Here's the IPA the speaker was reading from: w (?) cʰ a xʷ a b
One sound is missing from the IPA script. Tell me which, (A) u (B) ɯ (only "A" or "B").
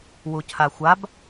A